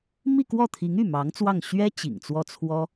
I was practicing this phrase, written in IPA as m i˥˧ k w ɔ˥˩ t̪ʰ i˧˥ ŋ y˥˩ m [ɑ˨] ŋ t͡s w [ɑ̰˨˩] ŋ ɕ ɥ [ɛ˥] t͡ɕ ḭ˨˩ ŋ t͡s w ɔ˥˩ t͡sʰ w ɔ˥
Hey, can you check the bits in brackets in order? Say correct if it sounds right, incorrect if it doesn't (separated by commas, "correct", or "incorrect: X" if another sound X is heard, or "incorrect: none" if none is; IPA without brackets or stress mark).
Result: incorrect: ɑ˧˥, incorrect: ɑ˥˩, correct